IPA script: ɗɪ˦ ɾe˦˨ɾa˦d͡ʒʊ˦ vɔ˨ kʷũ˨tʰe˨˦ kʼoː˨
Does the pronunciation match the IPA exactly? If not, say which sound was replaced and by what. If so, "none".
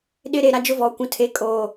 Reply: none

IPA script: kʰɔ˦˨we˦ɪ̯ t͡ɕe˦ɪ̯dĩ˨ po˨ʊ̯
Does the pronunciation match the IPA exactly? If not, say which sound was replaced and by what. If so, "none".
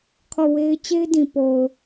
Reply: none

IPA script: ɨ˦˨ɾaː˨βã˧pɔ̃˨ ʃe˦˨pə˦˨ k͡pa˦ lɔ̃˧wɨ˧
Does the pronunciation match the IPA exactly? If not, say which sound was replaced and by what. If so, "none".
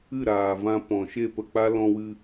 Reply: β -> v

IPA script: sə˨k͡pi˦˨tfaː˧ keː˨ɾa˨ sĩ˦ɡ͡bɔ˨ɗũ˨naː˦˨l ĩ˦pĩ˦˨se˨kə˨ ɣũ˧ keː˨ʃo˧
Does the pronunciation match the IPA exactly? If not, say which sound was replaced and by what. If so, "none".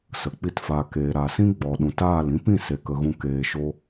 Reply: n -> t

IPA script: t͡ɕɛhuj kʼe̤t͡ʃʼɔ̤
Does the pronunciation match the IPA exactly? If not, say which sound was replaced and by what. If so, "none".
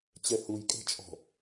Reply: none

